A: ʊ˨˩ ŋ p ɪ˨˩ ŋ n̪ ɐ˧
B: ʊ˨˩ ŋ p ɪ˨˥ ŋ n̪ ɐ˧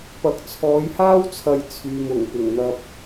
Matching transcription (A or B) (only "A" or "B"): A